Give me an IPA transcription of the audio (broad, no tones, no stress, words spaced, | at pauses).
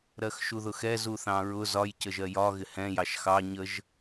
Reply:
ɾɜxʃuðʊxɛ zuθɑ̃ɹʊ zɒj cəʒɜjɒ ɣɪhɛ̃ jɑʃxɑ ɲəʒ